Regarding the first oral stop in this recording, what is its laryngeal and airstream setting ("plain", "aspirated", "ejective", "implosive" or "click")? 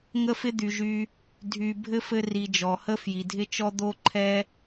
plain